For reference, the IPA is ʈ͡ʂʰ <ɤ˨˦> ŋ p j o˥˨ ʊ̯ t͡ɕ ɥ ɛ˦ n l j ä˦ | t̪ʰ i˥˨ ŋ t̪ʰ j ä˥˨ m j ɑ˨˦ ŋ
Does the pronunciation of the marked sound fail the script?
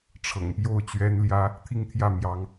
yes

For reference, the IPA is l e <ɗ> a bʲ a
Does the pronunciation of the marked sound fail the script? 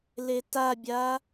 yes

